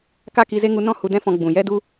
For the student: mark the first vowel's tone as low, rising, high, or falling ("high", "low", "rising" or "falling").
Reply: high